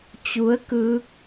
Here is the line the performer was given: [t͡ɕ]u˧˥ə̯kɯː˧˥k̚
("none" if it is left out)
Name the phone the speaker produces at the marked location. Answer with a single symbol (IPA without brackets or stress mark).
t͡ɕ